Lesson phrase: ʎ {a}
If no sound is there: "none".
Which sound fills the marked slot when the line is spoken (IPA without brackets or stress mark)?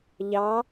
ɑ